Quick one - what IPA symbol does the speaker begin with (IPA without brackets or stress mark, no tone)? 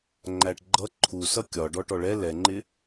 ŋ͡ǃ